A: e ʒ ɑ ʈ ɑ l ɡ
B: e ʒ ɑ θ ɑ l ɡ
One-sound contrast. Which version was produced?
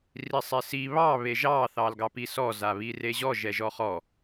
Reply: B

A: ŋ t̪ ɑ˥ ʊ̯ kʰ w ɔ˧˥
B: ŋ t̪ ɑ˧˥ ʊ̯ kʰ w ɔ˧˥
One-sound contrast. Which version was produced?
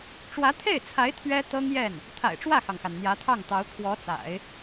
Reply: B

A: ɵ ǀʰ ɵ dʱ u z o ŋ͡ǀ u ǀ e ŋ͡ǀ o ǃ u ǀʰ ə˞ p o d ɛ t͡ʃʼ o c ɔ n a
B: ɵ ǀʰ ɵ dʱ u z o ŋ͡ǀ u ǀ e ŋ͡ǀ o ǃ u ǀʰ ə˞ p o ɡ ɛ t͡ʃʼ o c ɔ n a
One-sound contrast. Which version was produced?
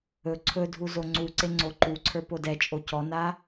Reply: A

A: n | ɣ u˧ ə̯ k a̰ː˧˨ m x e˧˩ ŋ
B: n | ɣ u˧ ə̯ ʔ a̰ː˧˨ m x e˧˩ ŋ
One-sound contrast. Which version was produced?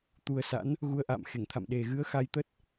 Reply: B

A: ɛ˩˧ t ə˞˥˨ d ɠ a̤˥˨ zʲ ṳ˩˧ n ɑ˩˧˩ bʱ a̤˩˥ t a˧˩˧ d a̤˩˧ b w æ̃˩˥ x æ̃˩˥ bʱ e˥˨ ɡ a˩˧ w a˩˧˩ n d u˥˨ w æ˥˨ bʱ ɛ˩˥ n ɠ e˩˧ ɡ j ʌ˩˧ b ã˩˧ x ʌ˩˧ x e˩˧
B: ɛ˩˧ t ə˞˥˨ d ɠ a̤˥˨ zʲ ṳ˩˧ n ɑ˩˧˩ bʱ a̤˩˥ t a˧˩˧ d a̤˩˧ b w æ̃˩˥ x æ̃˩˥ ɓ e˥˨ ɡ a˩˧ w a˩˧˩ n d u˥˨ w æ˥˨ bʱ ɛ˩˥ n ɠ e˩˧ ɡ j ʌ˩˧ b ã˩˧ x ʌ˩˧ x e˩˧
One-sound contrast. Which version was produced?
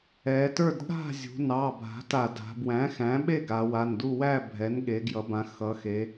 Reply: B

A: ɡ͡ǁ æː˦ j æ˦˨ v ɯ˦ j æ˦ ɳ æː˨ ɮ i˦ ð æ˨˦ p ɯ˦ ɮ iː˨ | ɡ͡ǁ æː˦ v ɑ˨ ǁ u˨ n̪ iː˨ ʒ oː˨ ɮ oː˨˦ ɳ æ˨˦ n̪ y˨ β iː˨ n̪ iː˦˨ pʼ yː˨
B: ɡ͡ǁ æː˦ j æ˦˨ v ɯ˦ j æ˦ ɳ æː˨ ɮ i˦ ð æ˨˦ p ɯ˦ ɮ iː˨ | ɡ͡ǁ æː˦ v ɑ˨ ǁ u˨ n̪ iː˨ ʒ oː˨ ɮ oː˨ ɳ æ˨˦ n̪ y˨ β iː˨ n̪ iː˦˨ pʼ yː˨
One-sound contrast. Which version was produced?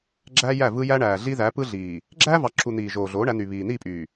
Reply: A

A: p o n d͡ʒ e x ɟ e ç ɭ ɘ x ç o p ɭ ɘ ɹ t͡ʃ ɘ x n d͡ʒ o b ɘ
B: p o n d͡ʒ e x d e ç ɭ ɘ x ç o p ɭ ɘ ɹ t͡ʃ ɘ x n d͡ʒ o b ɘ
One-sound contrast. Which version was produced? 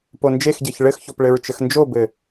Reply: A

